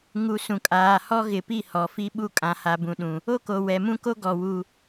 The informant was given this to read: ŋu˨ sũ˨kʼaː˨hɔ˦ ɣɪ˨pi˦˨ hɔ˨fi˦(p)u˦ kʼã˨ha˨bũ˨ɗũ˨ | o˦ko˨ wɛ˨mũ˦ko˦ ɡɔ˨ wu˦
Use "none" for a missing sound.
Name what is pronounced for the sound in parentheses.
ɓ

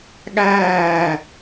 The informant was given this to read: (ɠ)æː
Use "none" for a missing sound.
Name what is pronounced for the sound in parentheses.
ɠ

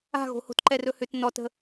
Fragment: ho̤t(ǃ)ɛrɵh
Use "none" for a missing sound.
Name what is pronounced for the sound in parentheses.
ǃ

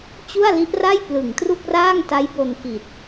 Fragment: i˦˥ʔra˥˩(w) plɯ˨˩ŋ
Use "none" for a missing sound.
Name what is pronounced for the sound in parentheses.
j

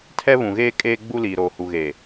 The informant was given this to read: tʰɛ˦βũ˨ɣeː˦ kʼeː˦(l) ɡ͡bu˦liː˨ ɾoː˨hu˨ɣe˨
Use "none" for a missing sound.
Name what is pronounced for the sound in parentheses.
none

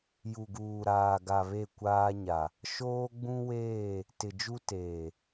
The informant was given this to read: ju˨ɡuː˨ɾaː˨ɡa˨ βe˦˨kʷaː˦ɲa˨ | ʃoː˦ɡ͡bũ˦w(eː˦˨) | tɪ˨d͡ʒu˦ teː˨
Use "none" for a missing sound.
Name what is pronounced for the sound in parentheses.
eː˦˨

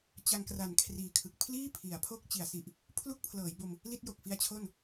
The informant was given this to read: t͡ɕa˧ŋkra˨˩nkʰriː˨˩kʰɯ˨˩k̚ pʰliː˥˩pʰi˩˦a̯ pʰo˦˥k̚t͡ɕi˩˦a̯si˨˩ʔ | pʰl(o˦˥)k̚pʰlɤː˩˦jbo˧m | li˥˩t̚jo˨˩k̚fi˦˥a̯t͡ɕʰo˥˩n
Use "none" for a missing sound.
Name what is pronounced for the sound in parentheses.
u˦˥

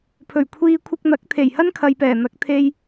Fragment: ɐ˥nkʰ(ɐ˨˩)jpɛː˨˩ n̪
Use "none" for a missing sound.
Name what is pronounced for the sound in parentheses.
ɐ˨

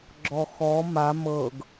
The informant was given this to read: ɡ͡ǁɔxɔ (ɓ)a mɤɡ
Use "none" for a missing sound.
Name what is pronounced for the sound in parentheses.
m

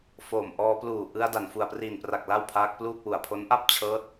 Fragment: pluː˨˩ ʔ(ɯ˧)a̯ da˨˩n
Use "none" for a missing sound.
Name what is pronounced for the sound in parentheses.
ɯ˧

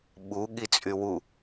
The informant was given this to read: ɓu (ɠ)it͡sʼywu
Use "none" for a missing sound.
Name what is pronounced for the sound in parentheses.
ɠ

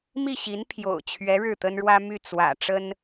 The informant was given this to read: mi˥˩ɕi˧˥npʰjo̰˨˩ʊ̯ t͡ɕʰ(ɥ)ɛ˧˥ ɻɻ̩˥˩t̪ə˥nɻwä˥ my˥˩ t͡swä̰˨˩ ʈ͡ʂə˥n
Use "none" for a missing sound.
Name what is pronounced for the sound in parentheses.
ɥ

